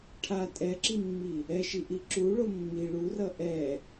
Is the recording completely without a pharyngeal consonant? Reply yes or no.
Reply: yes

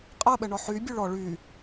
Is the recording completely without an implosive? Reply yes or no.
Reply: no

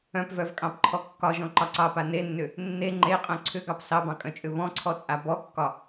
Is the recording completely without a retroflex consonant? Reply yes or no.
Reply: yes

